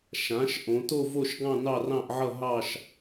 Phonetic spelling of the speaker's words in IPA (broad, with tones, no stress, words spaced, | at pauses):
ʃã˩˧ʃ ʔõ˩˧to˥˧vo˥˧ʃɡɑ̃˥˧ nɑ˥˧rɑ̃˥˧ʔʕʌ˥˧ ɦɑ˥˧ʃ